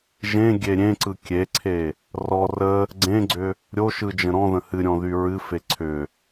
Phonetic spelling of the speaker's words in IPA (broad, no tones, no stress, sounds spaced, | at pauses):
ʒ ẽ ɡʲ e ɾʲ ẽ ǀ ɯ kʲ e ǀʰ e | r ɔ r ə | ɡ͡ǀ ẽ ɡ͡ǀ ʏ | ɾʲ o ʃ ɯ d͡ʒ ə̃ ɾ ɔ̃ ð ə̃ h ɨ ɾʲ ɔ̃ ð y ɹ ɨ f e ǀʰ ʏ